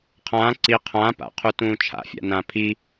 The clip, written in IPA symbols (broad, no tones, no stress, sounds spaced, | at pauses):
qʰ ãː ǀ i qʰ ãː p a̰ qʰ u t ũː t͡ʃʰ a̰ fʲ a̰ n ãː pʰ i